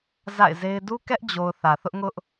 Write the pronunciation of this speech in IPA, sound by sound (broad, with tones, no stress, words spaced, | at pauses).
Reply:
za̰˦˨ɪ̯ze˦ɪ̯ du˦kɛ˦ʔd͡ʑo˨ʊ̯ θä˨ θʊ˦ʔŋʊ˦ʔ